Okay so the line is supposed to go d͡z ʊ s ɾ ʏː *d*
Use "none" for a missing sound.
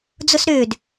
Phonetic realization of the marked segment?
d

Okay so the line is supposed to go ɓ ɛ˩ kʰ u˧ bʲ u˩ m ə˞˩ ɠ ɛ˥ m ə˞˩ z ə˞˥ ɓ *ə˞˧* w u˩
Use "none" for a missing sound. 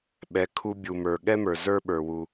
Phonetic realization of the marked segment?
ə˞˩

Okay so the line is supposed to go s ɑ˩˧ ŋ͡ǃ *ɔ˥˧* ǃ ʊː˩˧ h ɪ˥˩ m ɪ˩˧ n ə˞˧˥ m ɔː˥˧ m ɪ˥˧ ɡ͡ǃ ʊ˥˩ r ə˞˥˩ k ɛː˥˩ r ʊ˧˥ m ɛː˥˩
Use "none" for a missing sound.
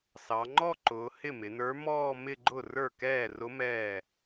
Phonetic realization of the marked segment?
ɔ˥˧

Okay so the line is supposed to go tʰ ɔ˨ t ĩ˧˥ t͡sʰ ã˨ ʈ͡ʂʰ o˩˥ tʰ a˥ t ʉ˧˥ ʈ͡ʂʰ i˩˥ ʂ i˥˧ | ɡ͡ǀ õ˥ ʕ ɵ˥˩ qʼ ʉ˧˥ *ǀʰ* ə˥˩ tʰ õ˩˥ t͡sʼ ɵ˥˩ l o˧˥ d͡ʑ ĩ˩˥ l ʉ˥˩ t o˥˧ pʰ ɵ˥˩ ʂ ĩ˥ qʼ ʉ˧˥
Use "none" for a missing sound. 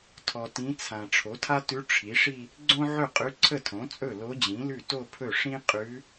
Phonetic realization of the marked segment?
ǀʰ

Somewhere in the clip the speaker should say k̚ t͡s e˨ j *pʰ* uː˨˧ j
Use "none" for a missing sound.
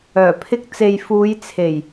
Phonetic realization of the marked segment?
f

